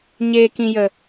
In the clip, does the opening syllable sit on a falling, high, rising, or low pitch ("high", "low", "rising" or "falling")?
low